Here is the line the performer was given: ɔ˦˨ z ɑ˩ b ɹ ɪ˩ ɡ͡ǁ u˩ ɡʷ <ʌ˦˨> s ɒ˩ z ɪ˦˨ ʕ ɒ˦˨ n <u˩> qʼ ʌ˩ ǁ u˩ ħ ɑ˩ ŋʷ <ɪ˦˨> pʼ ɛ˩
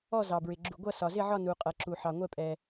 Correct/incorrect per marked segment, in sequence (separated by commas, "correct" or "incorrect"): correct, correct, incorrect